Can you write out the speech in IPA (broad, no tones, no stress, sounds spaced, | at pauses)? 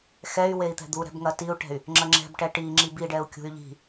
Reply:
x ɛ y̯ w e i̯ t̪ ɛ̤ d̪ u ɾ ɛ̤ b ŋ ɐ t i u̯ ʈ ɛ̤ y̯ | ŋ͡ǁ ɐ ŋ͡ǁ ɛ̤ b ʈ ɛ ʈ i ŋ͡ǁ i b i ɖ ɛ u̯ kʲ ṳ y̯ ʎ i̤